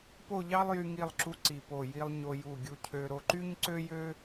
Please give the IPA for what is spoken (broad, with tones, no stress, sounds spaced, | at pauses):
p o˥˧ ʎ ɑ˥ lˠ j y˧ ŋ i˧˩ lˠ ǁ u˧ ǀ i˧˩ p o˧˩ j i˧ lˠ ɲ o˧ j u˧˩ ɡʲ u˧ cʰ ø˧ ɾ o˧ ǃ y˥ ɲ ǀ ø˥ j ø˥